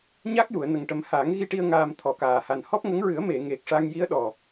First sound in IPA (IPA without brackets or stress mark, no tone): ɲ